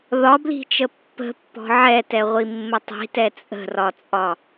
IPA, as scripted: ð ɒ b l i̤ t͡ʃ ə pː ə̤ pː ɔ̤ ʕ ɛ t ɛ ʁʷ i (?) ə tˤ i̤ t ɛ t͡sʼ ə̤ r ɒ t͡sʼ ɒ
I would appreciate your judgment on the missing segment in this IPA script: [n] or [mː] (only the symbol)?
mː